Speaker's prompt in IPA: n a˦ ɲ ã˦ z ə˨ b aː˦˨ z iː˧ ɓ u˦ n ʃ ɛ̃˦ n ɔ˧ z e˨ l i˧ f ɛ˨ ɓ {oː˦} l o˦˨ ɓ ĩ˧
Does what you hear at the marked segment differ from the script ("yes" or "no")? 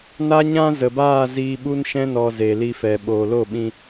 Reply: yes